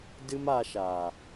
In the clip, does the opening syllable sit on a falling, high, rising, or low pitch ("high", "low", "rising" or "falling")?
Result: high